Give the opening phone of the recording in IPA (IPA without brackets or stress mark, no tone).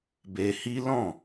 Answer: b